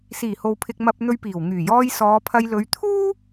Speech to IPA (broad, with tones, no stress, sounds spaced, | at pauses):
s iː˨˩ h o˨ w pʰ ɪ˧ k̚ m ɐ˧ p̚ n̪ ɵ˧ ɥ p iː˨˩ w ŋ yː˨˩ j ɔː˧ j s ɔː˨˧ pʰ ɐ˧ j l ɵ˨˧ ɥ t̪ʰ uː˥